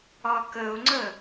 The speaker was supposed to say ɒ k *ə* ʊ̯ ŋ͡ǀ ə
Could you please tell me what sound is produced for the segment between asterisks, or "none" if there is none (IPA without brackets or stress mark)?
ə